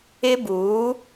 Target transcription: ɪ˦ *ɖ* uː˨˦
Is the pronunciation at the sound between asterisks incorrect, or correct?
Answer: incorrect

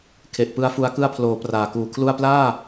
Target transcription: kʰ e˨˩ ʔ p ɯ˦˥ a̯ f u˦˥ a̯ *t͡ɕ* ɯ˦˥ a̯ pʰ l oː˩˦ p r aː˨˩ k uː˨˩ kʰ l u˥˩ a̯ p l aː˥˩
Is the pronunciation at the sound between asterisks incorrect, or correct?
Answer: incorrect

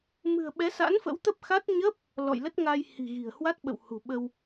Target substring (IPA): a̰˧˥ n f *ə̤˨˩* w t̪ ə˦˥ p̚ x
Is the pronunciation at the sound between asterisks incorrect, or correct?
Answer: incorrect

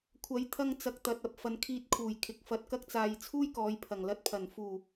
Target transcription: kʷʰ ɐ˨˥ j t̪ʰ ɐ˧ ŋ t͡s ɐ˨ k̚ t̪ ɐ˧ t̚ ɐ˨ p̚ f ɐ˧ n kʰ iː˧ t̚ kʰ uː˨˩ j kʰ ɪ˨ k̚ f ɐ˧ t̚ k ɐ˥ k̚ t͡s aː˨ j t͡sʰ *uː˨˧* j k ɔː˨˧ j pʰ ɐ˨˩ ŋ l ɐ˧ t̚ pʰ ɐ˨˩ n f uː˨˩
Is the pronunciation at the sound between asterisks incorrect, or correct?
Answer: incorrect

